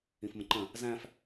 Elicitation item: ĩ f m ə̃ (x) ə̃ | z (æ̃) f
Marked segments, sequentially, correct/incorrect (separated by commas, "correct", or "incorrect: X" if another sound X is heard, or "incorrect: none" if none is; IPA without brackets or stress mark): incorrect: ǃ, correct